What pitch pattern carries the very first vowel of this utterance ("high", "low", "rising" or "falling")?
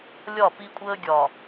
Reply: falling